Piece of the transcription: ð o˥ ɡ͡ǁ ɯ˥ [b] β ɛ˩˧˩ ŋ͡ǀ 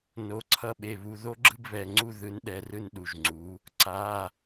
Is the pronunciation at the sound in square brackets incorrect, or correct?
correct